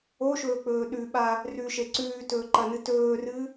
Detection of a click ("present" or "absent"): present